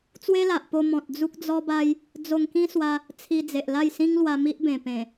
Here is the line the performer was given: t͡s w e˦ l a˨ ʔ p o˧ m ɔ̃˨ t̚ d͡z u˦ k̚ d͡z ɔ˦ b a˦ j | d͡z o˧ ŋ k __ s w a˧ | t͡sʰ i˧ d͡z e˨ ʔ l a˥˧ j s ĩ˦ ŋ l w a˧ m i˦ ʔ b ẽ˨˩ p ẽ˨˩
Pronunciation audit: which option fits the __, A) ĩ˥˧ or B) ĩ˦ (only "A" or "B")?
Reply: B